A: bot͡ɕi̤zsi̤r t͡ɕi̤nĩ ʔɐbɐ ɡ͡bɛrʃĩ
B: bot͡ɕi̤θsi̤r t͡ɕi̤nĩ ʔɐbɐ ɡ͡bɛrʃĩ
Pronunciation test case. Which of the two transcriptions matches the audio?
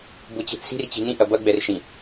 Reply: B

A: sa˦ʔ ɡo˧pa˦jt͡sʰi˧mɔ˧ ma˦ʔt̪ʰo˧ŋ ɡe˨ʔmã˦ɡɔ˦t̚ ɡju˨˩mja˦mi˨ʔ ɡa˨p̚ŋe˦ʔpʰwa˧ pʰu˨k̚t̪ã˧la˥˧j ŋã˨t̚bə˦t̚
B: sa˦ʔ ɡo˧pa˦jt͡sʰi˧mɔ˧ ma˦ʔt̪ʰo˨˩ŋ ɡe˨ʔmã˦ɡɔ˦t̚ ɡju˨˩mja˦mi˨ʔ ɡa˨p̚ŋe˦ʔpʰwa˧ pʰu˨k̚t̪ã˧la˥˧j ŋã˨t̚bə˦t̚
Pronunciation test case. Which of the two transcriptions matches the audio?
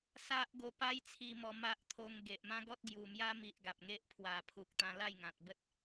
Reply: A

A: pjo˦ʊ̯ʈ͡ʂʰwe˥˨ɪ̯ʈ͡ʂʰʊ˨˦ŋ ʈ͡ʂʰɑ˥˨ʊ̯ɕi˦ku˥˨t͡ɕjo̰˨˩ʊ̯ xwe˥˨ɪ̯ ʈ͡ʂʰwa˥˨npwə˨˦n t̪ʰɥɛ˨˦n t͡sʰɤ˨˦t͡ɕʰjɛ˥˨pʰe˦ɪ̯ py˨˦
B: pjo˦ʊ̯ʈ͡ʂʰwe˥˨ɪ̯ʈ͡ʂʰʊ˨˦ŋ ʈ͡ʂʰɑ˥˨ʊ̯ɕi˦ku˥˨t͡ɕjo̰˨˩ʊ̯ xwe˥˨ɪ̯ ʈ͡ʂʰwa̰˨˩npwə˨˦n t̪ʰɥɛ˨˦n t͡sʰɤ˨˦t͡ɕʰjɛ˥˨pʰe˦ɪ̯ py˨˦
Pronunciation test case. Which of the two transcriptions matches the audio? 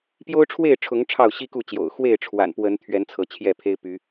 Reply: B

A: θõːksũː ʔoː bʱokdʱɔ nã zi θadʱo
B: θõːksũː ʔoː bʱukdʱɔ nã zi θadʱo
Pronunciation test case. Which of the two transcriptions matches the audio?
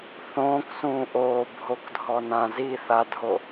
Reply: A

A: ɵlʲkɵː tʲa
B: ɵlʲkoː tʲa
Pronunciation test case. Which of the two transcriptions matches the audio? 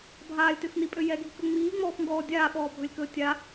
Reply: A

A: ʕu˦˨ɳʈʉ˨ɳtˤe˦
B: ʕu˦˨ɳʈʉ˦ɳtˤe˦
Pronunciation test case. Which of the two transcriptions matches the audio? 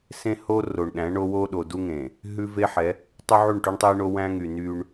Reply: B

